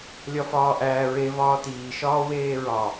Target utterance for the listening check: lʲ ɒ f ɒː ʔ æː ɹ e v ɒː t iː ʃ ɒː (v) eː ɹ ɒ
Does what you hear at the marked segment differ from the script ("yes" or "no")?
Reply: yes